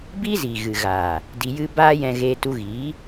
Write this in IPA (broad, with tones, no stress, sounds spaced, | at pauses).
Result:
b i˦ z i˨ ɣ ɨ˨ ɣ aː˨ | d i˧ j ɨ˦ b aː˦ j ɛ̃˧ ɣ eː˧ t u˧ ɣ iː˨˦